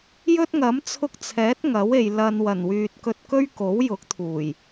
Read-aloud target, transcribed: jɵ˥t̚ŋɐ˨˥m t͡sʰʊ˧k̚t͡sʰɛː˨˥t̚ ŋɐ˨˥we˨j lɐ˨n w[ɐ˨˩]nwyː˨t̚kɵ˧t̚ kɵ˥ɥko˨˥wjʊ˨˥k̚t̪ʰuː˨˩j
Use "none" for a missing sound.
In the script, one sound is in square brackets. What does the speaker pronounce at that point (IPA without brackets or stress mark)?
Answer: ɐ˨˩